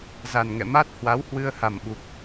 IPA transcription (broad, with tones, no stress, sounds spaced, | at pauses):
z a˨˩ n ŋ ɛ̰˧˨ m a˦˥ t̚ h w a˨˦ w h w ɨ˧ ə̯ h a˨˩ m ɓ u˨˩ k̚